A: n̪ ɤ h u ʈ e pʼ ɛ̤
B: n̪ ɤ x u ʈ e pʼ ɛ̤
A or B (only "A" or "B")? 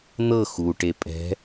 B